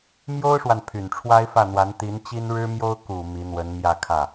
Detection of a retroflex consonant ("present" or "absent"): present